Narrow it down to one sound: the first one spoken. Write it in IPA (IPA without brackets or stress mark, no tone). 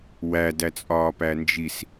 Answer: w